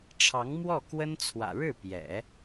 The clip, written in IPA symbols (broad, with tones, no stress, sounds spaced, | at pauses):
ʈ͡ʂʰ ɑ˧˥ ŋ m w ɔ˥˩ k w ə˥ n t͡sʰ w ä̰˨˩ ɻ ɻ̩˥˩ p j ɛ̰˨˩˦